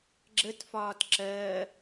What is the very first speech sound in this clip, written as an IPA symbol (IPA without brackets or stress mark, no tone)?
ɡ͡ǁ